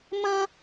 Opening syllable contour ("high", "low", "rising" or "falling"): high